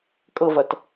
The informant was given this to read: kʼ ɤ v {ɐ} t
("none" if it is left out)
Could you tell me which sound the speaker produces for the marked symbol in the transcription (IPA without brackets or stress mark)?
ɐ